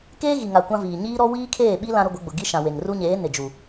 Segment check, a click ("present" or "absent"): absent